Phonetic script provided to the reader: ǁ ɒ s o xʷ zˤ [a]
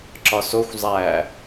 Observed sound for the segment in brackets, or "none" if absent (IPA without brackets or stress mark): æ